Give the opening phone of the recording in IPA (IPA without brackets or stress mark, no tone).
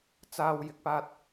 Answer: t͡s